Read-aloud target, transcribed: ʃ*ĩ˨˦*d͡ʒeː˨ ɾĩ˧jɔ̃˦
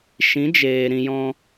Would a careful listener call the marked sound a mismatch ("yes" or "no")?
no